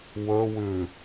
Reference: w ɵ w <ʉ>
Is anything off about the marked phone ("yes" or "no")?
no